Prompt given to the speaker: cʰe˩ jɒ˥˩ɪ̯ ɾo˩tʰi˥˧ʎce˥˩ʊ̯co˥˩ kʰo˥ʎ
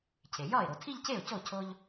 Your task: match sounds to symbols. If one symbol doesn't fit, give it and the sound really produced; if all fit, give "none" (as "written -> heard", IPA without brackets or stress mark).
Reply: kʰ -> cʰ